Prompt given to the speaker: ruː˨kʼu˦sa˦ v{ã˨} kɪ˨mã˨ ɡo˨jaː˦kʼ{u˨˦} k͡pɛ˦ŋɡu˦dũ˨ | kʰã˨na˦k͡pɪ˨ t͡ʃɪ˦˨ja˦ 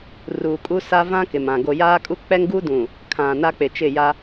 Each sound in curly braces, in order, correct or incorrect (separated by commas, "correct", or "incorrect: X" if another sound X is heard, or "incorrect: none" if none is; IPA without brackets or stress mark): incorrect: ã˦, incorrect: u˦